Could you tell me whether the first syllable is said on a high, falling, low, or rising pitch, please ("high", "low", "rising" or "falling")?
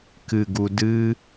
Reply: low